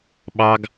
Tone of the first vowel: high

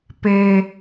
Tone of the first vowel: high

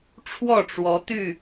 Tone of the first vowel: falling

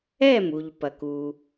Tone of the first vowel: falling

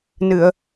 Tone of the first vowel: low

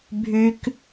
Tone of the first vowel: high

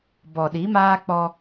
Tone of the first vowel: low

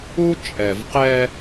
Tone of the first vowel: high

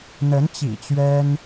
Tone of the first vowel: rising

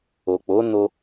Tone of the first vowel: low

